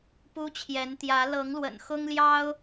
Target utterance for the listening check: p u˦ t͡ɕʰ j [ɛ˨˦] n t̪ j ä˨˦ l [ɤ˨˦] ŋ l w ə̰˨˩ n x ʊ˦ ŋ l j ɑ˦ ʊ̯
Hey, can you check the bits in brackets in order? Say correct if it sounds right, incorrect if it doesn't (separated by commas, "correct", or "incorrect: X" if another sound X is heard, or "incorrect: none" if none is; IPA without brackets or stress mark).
correct, correct